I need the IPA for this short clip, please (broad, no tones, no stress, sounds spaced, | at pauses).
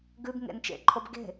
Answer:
ɡ ʉ b ŋ ḛ n t͡ʃ ḛ ǃʰ o b ɡ e̤